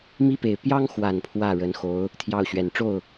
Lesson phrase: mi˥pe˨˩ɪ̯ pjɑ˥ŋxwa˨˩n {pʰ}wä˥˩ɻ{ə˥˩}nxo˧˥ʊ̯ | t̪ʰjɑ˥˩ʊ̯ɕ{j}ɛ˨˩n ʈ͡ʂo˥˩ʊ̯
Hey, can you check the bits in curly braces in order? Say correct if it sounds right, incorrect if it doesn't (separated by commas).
correct, incorrect, incorrect